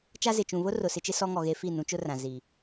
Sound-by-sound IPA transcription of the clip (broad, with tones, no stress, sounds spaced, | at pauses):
t͡ʃ a˦ z ɪ˨ t͡ʃ ũ˨ β ʊ˦ r ʊ˨ s ɪ˦ t͡ʃ ɪ˦ s ɔ˦ ŋ ɔ˨ ɣ e˦ f i˦˨ n ũ˦ t͡ʃ ʊ˦ r ã˨ z i˨